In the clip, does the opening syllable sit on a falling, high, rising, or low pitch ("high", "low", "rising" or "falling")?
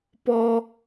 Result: high